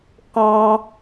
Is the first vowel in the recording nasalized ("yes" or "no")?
yes